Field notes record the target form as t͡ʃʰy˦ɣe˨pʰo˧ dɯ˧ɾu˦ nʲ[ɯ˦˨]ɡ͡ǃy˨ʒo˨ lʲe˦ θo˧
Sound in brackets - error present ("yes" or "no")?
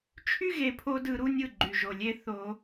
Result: no